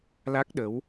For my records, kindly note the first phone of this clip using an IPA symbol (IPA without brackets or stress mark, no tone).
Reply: l